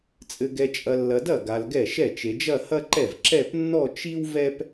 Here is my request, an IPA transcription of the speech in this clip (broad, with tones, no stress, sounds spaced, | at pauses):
t͡sʼ ɘ˨ ɡ ɛ˨ t͡ʃʼ ɐ˨ lː ɐ˨ d ɐ˥˩ ɡ a˨ l ɡ ɛ˥˩ ʃ ɛ˥˩ t͡ʃ e˨ d͡ʒ ɐ˥˧ h ɐ˥ ǃ ɛ˥˩ v ǁ ɛ˥˧ p nː ɔ˥˧ t͡ʃ i˥ w v ɛ˥ p